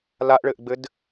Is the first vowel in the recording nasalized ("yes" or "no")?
no